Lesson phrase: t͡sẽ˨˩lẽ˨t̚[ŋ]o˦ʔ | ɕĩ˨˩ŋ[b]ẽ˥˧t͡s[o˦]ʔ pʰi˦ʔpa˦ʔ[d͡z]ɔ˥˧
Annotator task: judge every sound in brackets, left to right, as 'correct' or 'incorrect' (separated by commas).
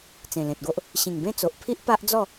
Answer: incorrect, correct, incorrect, correct